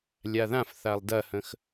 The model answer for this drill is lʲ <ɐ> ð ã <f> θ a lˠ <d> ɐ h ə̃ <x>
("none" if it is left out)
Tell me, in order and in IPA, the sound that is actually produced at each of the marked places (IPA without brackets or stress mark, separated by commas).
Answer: a, f, d, x